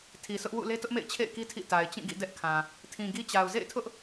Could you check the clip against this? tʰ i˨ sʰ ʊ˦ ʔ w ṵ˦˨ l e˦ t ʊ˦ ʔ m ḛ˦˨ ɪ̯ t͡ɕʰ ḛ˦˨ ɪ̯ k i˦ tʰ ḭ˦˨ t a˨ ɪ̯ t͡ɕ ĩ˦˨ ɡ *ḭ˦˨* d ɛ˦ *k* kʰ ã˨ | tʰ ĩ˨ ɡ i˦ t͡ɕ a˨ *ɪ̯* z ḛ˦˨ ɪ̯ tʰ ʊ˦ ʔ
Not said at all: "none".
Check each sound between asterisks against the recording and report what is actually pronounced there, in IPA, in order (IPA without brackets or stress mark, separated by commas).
ḭ˦˨, ʔ, ʊ̯